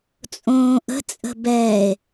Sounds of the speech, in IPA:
t͡sʼõːʔə̤ t͡sʼə̤bɛːe̯

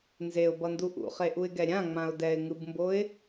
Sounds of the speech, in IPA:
nzeʊ̯bʌndu ʔṵχeʔuɪ̯ɡɛ ɾʲãŋ͡mãʊ̯ dɛɪ̯ŋɯbmboɪ̯

